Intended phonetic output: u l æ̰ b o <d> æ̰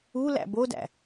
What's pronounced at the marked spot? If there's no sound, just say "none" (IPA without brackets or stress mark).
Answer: d